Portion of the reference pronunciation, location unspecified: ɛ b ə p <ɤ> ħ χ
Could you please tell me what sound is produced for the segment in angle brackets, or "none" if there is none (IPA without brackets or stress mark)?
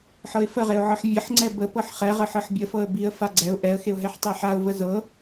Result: ɤ